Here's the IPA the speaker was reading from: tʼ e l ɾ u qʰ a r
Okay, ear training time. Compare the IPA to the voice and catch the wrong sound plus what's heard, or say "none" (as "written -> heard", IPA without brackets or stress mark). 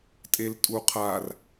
ɾ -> tʼ